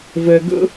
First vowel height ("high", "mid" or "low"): mid